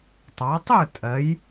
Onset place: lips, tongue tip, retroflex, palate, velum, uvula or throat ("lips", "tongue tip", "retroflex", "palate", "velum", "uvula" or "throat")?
tongue tip